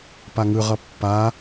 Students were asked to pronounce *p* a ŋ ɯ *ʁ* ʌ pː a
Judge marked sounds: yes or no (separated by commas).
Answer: yes, yes